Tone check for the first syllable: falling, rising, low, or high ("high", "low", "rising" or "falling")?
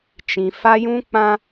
low